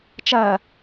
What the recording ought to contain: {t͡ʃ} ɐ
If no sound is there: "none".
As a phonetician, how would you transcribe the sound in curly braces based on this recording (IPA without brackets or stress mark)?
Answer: t͡ʃ